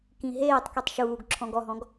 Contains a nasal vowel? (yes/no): yes